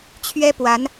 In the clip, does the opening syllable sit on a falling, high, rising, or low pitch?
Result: high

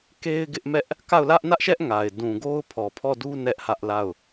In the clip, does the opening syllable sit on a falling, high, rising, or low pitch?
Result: high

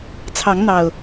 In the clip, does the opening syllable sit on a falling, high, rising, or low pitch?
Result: rising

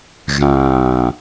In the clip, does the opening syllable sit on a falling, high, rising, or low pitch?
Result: low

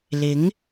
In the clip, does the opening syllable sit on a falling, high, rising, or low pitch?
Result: rising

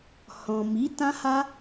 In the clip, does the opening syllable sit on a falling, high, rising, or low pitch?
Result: low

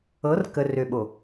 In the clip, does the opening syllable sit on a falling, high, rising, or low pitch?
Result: rising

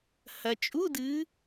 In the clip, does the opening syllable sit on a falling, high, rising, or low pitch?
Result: low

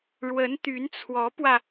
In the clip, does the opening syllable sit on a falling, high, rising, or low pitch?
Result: rising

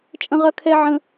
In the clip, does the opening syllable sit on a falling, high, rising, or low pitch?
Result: high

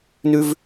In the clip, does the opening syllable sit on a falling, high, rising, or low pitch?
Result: high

